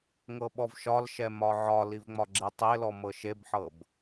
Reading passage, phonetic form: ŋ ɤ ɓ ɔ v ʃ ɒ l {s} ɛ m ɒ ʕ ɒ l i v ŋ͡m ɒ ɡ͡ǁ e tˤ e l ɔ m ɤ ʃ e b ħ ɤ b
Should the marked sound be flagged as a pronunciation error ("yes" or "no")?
yes